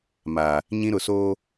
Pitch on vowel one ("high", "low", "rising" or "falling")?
low